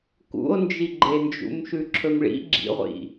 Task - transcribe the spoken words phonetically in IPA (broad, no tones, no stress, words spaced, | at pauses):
kṵo̯nd͡ʒiɡ͡ǃend͡ʒṵm ʃʉǁʰɵmɭḭ ɡ͡ǁḭʁʷḭ